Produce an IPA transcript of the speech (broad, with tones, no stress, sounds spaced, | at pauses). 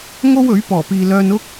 ŋ o˥ w ɵ˨˥ ɥ p ɔː˨˩ p iː˨ l œː˧ n ʊ˥ k̚